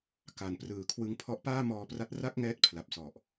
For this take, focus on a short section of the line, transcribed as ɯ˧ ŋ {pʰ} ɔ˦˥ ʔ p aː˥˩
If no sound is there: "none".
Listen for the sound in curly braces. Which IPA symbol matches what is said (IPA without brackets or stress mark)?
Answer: pʰ